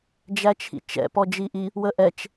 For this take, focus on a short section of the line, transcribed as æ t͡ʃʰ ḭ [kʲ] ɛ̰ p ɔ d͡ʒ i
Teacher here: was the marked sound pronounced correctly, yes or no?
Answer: no